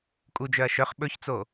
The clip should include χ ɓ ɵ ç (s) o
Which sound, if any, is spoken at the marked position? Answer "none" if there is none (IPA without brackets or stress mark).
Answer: t͡s